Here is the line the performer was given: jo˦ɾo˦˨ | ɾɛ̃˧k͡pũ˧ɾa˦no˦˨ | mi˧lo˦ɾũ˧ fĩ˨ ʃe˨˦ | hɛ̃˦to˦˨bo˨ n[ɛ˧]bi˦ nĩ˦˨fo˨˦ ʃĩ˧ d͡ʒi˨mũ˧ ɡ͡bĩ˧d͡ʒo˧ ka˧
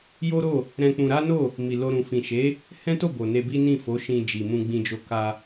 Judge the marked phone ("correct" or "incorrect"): incorrect